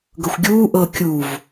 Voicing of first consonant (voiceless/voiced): voiced